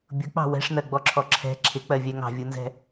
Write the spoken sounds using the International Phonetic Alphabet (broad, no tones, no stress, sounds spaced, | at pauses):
bʲ ʊ k͡p ɑ̤ w ɛ̤ ʂ n ɜ ɡ͡b ɔ ǁʰ ɔ ǁʰ ɛ̤ ǁʰ ɪ k͡p ɜ vʲ ɛ ŋ ɑ̤ vʲ u n z ɛ̤